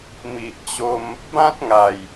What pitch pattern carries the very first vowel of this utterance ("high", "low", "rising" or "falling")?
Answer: low